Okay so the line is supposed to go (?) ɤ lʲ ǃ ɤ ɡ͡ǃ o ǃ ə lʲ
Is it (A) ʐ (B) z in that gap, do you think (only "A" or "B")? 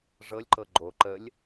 A